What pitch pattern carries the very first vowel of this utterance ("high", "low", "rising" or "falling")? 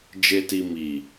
low